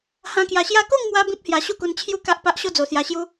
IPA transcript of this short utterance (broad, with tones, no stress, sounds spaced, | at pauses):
h ã˧ k j a˨˩ ɕ j a˦ k o˥˧ ŋ m w a˧ b ĩ˦ p̚ h j a˧ ɕ u˥˧ k u˧ n t͡ɕʰ j u˦ k a˦ ʔ p a˦ ʔ ɕ o˦ d͡z o˨˩ s j a˧ ɕ j u˦